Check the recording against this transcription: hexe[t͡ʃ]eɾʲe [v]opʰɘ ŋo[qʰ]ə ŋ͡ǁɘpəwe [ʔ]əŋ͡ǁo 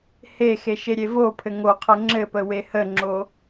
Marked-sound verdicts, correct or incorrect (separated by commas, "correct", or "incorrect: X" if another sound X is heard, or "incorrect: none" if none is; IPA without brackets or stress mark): incorrect: ʃ, correct, correct, incorrect: h